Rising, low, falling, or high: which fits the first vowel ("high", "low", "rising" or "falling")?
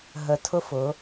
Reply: rising